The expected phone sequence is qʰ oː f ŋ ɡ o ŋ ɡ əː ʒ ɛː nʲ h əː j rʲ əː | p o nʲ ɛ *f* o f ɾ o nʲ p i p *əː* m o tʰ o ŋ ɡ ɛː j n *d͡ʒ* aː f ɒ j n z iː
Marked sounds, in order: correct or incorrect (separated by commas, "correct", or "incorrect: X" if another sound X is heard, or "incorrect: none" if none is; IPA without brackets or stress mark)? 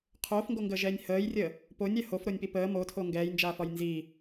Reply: incorrect: h, correct, correct